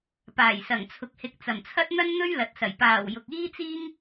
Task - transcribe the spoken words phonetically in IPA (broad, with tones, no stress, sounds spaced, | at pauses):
p aː˨˩ j s ɐ˨˩ ŋ t͡sʰ ʊ˨ k̚ h ɪ˨˥ k̚ t͡s ɐ˨˩ m t͡sʰ ɐ˥ t̚ n̪ ɐ˥ n n̪ ɵ˥ ɥ l ɐ˨ t̚ s ɐ˨˩ j p aː˨˩ w j ʊ˨ k̚ iː˥ t͡s iː˥ ŋ